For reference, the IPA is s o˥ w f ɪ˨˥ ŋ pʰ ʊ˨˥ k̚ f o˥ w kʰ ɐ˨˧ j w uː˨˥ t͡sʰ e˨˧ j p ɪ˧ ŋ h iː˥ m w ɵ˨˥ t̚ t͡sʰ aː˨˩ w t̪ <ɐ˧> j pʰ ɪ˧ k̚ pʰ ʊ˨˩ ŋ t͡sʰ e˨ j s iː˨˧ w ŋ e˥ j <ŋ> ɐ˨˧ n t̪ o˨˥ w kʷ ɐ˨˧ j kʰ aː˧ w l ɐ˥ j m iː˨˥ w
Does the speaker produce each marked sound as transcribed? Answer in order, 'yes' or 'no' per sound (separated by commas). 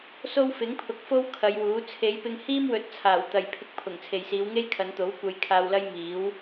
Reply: no, no